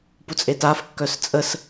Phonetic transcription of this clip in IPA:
p u t͡sʼ e t a f kː œ s t͡sʼ ə s

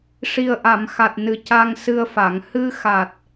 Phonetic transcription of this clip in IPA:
ʂ i˨˩ ə̯ ʔ a˨˩˨ m x a˨˩ t̚ n ɨ˨˩ c a˧ ŋ s ɨ˧ ə̯ f a˨˩˨ ŋ h ɨ˧ x a˨˩ t̚

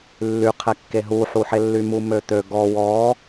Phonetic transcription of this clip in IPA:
lː y qʰ ɛ kː e ɦ u ħ u ħ e lː y m u m ø t̪ ø ɡ ɔ w ɔ

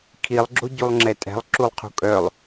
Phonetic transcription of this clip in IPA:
kʰ i lˠ ɡ͡ǁ o ɟ u lˠ ŋ͡ǁ ɛ tʼ ɛ̤ lˠ ǁ u lˠ qʰ ṳ kʼ œ lˠ

